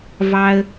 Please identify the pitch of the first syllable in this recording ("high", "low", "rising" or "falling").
low